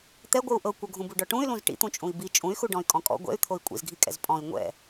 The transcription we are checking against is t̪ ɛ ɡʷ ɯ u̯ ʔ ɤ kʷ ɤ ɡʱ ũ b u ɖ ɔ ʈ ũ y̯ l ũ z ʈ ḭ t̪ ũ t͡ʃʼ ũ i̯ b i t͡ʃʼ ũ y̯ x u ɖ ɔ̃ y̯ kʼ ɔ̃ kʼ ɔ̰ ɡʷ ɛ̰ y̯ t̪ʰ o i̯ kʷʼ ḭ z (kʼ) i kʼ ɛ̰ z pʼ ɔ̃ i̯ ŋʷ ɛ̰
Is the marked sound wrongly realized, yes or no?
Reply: yes